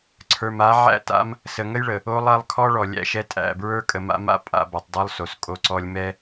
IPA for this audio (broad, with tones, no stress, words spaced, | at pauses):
ǀʰə˞˨ma˨˦ ʕæ̰˦ta̰˦m | sə˨ŋə˦jɭə˨ | o˦lˠa˦lˠ kʰɔ˦ ɭɔ˨lʲæ̰˦ʃɛ˦ tʼæ̰˦˨ bɹə˞˦kʼə˨ma̰˦ma̰˦ pʼa̰˦ ba˨tˤdˤo˦lˠ so˨s kʼo˦ǀɔ˦lʲ mɛ˦